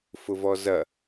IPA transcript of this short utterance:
f ʊ v ɔ z ɐ

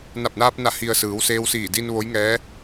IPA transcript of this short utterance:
n a˧˩ p̚ n aː˧ p̚ n a˧˩ h i˩ ə̯ s ɯː˩˧ w s eː˧ w s iː˧˩ d i˧ n ʋ o˧˥ j ŋ ɛː˧˥

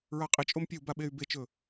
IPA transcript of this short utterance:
ɹ a qʼ i t͡ʃʼ o m pʲ ɐ u̯ b a ɓ e y̯ b e t͡ʃ ɵ

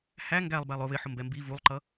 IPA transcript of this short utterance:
h æ ŋ ɡ æ lˠ b æ lˠ ʊ β ɪ ħ ʊ m b ɛ m b i v u lˠ ǃ ʌ

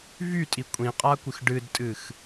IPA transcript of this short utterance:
v y tʼ i kʷʼ ĩ qʼ a kʷ ɨ x ɖ ɨ d tʼ ɨ x

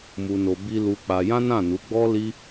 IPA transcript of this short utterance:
m u˧ n o˧ b i˧ l u˧ k͡p a˧ j ã˦ n ã˦˨ n u˨˦ ɡ͡b ɔ˦ l i˦

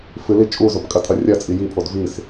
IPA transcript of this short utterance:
f ɨ l i t͡ʃʼ u z o p kʼ ɐ tʰ ɐ rʲ ɐ t͡sʼ i j i pʰ o d v i s

